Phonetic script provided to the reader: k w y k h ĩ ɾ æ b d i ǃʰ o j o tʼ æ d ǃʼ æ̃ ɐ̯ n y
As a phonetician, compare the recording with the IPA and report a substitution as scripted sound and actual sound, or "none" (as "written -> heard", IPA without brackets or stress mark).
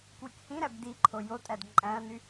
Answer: none